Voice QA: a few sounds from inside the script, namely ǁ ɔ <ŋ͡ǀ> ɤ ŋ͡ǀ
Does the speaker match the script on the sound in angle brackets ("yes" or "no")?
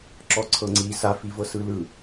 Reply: no